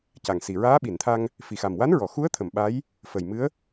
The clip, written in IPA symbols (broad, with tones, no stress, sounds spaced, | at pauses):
c a˨˩ ŋ s i˨˩ ɹ aː˧˥ ɓ i˨˩˨ n t̪ʰ a˧ ŋ | f i˨˩ x a˨˩ m w a˧˥ n ɹ ɔ˨˩˨ x u˧˥ ə̯ t̪ʰ ə˨˩˨ m ɓ a˧˥ j | f ə˨˩ j m ɨ˧˥ ə̯